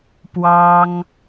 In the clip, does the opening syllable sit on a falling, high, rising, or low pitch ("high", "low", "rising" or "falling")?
high